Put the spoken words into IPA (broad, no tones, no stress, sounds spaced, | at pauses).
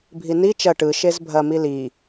bʱ i n i t͡ʃ ɐ ʈ ɯ ʃ e z bʱ ɐ m i l i